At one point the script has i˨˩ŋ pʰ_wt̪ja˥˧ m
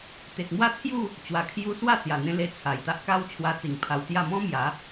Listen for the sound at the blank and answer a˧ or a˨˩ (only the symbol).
a˧